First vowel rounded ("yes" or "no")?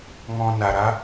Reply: yes